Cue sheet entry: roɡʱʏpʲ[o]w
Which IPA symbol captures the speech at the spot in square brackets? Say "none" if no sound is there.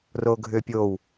o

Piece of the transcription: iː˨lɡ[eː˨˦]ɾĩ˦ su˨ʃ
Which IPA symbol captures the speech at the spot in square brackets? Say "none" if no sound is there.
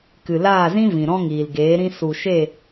eː˨˦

